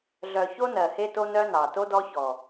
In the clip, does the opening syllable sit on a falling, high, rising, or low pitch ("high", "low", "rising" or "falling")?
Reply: low